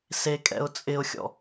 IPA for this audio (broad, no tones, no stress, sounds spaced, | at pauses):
s e kʼ ɛ̰ ʊ̯ t͡sʼ ɪ ʊ̯ xʲ ɔ̰